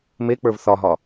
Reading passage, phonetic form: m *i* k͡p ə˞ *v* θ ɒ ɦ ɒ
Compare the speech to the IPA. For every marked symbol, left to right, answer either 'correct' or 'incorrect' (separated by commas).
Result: incorrect, correct